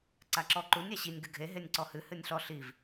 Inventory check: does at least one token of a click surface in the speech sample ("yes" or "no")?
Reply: yes